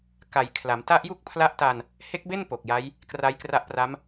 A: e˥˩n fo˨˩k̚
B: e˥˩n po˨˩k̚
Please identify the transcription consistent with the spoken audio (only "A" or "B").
B